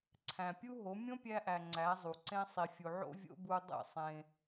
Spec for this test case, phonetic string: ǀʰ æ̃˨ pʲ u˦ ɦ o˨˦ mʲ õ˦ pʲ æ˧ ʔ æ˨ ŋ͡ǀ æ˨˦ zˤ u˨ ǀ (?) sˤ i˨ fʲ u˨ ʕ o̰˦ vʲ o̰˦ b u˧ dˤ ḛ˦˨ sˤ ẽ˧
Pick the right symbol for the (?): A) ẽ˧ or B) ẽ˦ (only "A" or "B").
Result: B